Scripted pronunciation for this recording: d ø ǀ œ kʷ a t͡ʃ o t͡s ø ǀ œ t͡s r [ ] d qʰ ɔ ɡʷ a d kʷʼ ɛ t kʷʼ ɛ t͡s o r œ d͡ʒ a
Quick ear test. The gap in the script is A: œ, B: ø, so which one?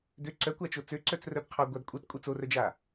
A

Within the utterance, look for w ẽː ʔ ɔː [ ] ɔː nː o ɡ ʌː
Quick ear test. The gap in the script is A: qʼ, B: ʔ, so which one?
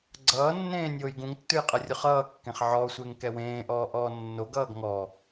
B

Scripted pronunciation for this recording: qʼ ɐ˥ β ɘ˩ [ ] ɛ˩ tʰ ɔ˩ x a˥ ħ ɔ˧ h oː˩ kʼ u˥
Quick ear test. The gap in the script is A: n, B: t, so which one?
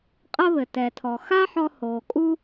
B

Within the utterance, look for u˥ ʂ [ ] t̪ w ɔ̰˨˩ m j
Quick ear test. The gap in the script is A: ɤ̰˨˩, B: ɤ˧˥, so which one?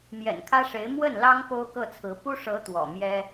B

